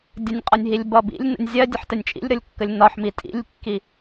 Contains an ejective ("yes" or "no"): yes